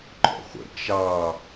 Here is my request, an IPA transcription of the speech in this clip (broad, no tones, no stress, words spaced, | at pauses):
ǃɔ̰χʷə̰ t͡ʃɑ